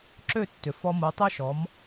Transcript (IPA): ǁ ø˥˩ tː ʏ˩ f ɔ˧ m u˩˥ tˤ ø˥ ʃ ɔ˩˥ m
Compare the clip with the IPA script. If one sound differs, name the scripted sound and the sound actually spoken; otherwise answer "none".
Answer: none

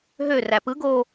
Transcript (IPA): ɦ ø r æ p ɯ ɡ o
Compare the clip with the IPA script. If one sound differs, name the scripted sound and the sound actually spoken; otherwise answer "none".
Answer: none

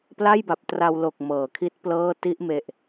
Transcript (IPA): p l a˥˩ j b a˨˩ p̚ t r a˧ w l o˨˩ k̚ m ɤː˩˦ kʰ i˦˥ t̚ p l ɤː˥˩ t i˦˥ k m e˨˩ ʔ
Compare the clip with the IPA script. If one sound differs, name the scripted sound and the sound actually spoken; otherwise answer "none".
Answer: k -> ʔ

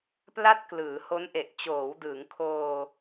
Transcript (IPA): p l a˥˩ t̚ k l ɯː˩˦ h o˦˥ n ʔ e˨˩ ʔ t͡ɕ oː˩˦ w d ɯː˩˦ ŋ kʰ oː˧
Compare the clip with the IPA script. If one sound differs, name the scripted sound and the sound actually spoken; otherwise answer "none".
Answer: none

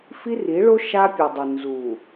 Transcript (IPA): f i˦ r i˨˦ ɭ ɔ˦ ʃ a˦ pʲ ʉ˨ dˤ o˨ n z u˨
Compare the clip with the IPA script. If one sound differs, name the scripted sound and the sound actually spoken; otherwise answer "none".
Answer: ɔ˦ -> o˦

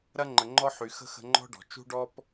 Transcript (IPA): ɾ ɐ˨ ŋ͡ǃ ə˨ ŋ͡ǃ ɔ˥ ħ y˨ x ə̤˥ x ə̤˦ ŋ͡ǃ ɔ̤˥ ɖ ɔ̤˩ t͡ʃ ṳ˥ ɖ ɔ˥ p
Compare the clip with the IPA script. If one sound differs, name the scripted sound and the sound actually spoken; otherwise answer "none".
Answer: ɐ˨ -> ɐ˥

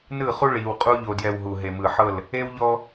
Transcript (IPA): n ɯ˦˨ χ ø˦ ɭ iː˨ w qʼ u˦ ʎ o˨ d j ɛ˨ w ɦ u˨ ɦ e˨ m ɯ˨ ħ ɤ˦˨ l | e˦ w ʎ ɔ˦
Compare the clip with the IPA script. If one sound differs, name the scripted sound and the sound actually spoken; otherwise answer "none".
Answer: ø˦ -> u˦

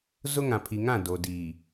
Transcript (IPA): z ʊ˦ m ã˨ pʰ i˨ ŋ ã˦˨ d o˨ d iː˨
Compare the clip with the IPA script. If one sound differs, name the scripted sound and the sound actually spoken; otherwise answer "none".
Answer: m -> ŋ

